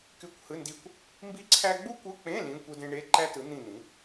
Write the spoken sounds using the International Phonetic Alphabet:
k y˧˥˧ kʷ h ɯ˧˥˧ n d i˦˨ kʷ | m b i˥ ǀʰ æ˥ ɡ͡b u˥ kʷ ɯ˧˥˧ k͡p ẽ˧˥˧ l ĩ˧˥˧ kʷ ɯ˥ d ẽ˥ ɳ e˧˥˧ ǃ æ˥ t ɯ˩˥ n̪ ĩ˦˨ n̪ ĩ˩˥

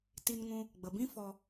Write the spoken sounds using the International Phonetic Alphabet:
t i˧ n ŋ ũ˧ | ɡ͡b ə˨ b ĩ˦ f ɔ˧

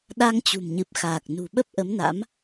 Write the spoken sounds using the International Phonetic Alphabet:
ɗ a˧ ŋ t͡ɕ ṳ˨˩ m ɲ ɨ˨˩ p̚ x aː˨˩ k̚ n ṳ˨˩ ɓ ə˦˥ p̚ ʔ ə˨˦ m n a̰˧˥ m

